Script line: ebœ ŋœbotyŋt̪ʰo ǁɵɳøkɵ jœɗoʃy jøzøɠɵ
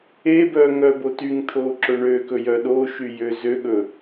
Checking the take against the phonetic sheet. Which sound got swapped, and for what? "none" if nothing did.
none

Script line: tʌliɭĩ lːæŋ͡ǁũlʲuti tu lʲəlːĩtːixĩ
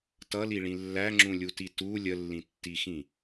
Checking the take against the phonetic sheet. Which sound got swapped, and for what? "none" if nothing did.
none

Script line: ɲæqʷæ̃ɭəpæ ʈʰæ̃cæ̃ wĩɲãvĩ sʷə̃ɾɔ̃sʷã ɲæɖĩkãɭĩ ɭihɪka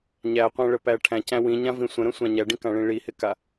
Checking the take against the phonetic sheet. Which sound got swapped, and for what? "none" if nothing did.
ɔ̃ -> ə̃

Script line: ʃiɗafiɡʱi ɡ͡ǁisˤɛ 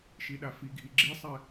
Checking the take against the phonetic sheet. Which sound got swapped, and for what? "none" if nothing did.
none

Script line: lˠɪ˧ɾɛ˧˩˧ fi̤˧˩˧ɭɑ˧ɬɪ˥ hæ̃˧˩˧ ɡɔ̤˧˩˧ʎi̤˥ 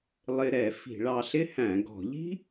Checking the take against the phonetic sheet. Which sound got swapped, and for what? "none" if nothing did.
none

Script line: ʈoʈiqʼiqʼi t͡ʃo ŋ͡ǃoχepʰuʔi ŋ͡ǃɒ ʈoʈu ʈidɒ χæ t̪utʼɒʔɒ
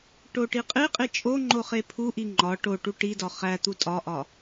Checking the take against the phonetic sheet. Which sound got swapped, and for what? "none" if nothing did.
t͡ʃ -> t͡ʃʼ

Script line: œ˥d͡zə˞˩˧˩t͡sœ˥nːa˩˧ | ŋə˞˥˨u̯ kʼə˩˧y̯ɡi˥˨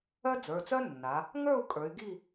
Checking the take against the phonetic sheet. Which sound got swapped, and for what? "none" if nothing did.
ə˩˧ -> ə˞˩˧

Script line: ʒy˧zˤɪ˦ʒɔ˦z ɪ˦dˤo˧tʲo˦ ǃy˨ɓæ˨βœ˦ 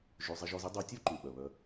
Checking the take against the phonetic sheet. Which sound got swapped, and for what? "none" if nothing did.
æ˨ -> œ˨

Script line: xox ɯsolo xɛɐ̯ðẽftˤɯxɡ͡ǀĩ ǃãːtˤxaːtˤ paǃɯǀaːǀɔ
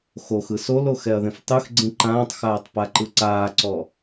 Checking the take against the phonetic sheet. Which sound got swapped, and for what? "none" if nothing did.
none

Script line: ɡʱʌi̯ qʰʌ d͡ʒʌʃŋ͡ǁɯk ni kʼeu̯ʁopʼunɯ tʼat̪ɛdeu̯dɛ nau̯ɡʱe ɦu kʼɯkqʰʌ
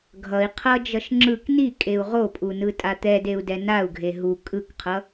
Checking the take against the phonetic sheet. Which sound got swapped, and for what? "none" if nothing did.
none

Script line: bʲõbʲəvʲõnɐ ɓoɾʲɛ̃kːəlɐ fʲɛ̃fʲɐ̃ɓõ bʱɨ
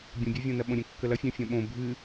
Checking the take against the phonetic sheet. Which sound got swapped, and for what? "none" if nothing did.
o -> õ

